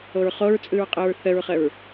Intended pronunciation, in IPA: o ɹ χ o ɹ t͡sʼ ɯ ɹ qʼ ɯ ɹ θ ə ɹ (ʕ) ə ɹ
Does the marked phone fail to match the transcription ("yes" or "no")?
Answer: yes